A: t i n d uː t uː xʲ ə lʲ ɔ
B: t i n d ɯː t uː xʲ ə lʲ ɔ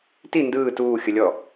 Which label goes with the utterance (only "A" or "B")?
B